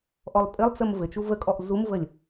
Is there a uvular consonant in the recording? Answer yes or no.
no